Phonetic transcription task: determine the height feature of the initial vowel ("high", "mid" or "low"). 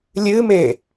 high